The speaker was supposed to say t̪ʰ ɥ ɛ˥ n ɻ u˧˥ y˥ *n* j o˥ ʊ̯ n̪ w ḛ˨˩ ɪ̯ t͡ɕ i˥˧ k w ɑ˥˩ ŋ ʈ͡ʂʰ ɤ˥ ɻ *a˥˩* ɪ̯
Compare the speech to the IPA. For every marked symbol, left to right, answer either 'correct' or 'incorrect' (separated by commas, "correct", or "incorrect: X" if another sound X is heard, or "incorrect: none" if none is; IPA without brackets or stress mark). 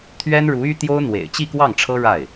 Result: incorrect: t̪, correct